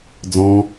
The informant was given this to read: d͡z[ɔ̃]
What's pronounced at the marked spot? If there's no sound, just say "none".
ɔ̃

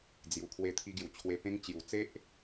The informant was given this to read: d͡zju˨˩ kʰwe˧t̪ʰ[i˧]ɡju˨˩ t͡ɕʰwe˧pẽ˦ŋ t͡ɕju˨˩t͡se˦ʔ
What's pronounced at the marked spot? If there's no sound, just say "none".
i˧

